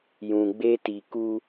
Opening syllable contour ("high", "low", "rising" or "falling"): low